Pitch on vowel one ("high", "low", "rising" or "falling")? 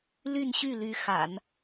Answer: falling